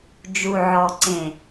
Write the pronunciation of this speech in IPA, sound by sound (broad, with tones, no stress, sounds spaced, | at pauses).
d͡ʒ u˨ ʕ ɔ˨ ǀ ẽ˨